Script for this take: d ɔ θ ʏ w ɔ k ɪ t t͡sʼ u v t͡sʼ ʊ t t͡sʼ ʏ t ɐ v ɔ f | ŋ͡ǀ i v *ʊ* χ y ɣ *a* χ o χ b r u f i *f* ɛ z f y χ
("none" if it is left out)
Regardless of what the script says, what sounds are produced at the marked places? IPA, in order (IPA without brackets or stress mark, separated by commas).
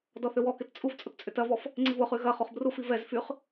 ʊ, ɐ, v